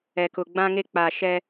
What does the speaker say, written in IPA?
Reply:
ɛ˨kʊ˨ ɡ͡bã˦ŋe˦k͡paː˨ ʃɛ˦

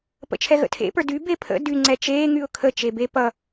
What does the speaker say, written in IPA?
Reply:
pə̰t͡ʃʰɛɣə̰tʰḛ pə˞dy bepʰə̰ dy ŋ͡ǀɛt͡ʃeː ŋyʊ̯kʰə t͡ʃebe pʌ

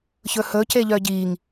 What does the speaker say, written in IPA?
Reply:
çɵhɵ ceʎœɟiŋ

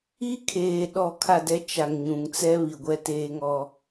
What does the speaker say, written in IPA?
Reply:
i˦kʰeː˨ ɗɔ˨kʰa˨dɛ˨˦ t͡ʃa˨ŋɲũ˨ŋt͡sɛ˦ βi˨ɡʷɛ˦teː˦ŋɔ˦

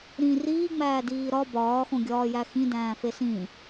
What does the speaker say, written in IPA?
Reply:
ɾĩ riːŋ͡mæːdiː ɾɒ bɒːxõɡʲɒːjæ xĩdæ̃ːfe sĩ

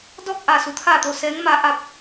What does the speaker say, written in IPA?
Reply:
dɔː˥˨k̚ʔa˧˩ su˩˧t̪ʰaː˧˩t̪o˧˩ sɛː˧˥ŋmaː˧˥ ʔa˧p̚

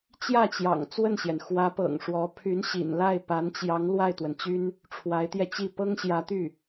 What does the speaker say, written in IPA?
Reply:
t͡ɕjä˥˩t͡ɕjɑ̰˨˩ŋ t͡swə˥˩nɕjɛ˩n xwä˧˥pɤ̰˨˩ŋ ʂwɔ˧˥ pʰy˧˥nɕḭ˨˩nla˥˩ɪ̯ pa˧˥nt͡ɕjɑ˧˥ŋ lwa˥˩ɪ̯t̪wə˩nt͡ɕy˥n | ʈ͡ʂʰwa˧˥ɪ̯t̪jɛ˧t͡ɕi˥˩ pɤ˥ŋɕjä˧˥t̪y˥˩

